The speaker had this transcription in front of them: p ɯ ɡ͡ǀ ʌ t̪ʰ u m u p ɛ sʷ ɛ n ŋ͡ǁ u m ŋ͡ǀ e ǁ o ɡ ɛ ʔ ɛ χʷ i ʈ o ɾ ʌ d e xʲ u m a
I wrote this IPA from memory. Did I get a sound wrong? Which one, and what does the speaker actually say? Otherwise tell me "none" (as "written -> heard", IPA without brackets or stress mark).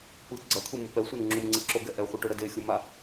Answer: none